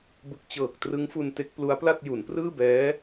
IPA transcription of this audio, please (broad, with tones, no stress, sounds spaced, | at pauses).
b ɯ˨˩ k̚ t͡ɕ ɤː˨˩ k̚ t r ɯ˦˥ ŋ f u˧ n t e˦˥ k̚ p l u˦˥ a̯ p l a˥˩ t̚ j u˩˦ n p r ɯː˥˩ b ɛː˦˥